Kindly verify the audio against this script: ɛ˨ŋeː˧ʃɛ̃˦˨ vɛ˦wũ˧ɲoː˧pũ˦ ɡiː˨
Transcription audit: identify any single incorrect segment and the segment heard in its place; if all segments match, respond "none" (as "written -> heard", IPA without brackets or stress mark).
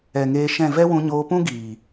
none